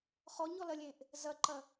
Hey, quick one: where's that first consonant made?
uvula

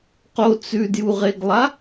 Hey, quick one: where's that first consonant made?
uvula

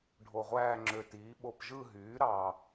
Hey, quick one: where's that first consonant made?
retroflex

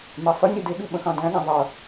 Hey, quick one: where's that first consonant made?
lips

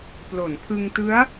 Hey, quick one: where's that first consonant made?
lips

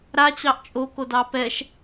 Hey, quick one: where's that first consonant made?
tongue tip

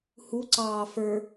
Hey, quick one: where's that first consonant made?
throat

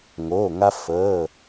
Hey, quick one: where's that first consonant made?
velum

